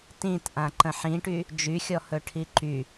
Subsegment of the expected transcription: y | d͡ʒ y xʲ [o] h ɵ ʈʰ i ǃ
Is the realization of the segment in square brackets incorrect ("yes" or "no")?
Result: yes